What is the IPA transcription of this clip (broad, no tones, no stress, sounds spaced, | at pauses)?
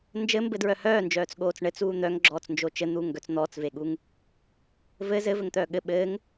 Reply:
n d͡ʒ ɘ m b ɘ d ɹ œ h œː n d͡ʒ œː t͡s ɠ oː t͡s ɳ ɘ t͡s uː n̪ œ ŋ ɡ͡ǁ ɔː t͡s n d͡ʒ o t͡ʃ ɘ n̪ uː ŋ ɡ œ t͡s n̪ ɔː t͡s v e ɠ u ŋ | v ɘ z ɘ v ɘ ŋ t̪ œː ɠ ɘ ɓ ɘː ŋ